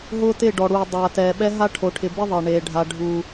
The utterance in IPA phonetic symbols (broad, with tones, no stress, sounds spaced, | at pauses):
ɦ ʊː˦ t ɪː˦˨ ɖ ɔ˨ ɽ uː˨ dˤ aː˨ t ɛː˨ ɓ ɛ˦ ɦ a˦ ʈʰ o˨ ʈʰ ɪ˨ b ɪ˦ ðˤ e˨ ɳ eː˨ ɖʱ a˨ ɖʱ u˨